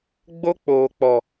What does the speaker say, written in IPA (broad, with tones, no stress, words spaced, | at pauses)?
ɡ͡bo˦k͡poː˨ k͡pɔ˨